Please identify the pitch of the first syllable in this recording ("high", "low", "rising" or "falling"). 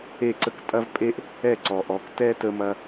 falling